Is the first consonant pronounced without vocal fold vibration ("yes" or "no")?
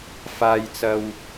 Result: yes